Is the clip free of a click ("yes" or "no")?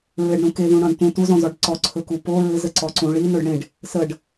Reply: no